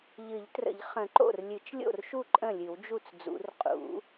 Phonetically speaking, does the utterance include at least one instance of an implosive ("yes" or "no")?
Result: no